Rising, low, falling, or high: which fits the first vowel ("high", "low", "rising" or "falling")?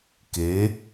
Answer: rising